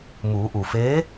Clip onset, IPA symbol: m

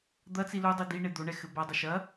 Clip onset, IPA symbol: d̪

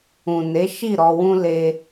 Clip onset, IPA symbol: ũ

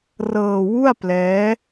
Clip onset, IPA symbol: r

